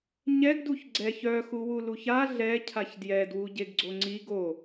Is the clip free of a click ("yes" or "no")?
no